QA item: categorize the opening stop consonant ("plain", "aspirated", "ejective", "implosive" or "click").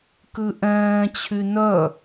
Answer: plain